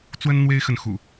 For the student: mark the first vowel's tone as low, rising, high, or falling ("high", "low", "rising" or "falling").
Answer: high